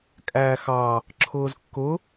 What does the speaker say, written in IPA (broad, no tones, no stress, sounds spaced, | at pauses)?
kʼ æː x ɑ | ǁʰ ʊː z kː ʊ